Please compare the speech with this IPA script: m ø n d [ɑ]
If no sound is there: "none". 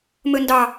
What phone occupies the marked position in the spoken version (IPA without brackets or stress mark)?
ɑ